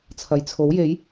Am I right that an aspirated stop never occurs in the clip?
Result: no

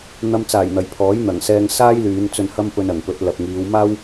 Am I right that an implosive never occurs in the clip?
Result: yes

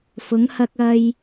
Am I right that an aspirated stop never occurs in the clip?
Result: yes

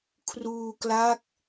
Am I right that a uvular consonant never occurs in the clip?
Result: yes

